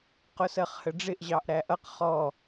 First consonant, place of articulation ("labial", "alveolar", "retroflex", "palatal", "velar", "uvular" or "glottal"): uvular